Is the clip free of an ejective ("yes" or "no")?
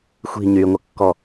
yes